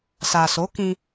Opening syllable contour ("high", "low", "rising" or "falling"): low